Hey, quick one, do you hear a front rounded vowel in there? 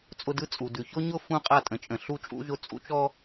no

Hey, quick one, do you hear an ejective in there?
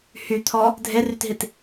no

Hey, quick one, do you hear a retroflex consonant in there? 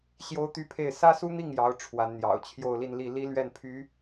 yes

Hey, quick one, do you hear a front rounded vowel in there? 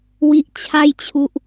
no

